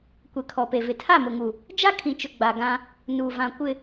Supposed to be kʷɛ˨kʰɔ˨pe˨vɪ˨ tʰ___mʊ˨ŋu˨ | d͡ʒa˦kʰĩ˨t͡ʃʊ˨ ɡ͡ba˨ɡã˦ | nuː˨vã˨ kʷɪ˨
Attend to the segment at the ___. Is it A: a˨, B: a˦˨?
B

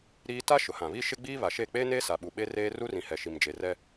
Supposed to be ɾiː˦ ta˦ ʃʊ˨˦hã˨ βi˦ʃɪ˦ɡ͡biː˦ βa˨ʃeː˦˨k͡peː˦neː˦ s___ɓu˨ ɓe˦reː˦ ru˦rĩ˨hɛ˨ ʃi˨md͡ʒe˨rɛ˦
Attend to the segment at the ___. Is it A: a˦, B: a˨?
B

